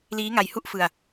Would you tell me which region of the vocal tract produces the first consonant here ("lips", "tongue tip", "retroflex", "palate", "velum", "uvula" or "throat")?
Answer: tongue tip